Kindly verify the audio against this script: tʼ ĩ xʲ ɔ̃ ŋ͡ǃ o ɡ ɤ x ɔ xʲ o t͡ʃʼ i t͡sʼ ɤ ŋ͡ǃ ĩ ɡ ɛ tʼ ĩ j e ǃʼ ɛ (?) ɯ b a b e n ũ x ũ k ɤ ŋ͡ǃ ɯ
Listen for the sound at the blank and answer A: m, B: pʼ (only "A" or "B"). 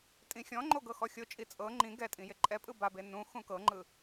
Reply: B